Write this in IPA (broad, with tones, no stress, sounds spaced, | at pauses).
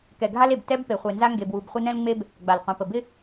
k ɛ˨ ɡʱ a˦ l e˨ b t ɛ˦ b p e˨ χʷ e˨ n z a˦ ŋ ɡ e˨ b w u˨ b χʷ ə˦ n ɛ̃˦ l ŋ͡m e˦ b | ɡ͡b a˨ l qʷ ɛ̃˨ p ə˨ b ɪ˦